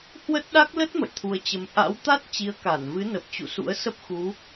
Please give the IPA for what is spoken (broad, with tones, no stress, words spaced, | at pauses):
hwə˦˥t̚ɗa˦˥k̚ lə˦˥t̚ mə̰˧˨jt̪ʰu˧ə̯t͡ɕə˧m ʔa̰˧˥wt̪a˦˥t̚ t͡ɕi˨˦ə̯ka˧˩nvɨ˨˦nə˨˩p̚ t͡ɕṵ˧˨sṵ˧˥ə̯ sə˦˥p̚xu˨˦